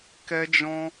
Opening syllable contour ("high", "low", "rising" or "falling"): high